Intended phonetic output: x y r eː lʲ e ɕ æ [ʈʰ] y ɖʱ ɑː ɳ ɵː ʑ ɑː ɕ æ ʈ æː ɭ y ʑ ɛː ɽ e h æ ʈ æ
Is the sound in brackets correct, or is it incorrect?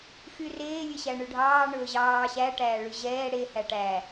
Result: incorrect